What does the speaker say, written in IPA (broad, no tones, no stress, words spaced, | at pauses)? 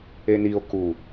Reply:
enio̯ ku